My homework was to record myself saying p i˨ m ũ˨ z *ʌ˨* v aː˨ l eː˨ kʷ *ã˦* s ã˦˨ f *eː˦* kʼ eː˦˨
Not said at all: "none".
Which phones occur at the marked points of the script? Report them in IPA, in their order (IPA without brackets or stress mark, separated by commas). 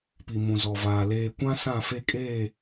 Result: ɔ˨, ã˦, e˦